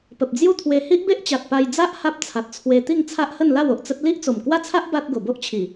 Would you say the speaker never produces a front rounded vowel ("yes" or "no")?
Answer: yes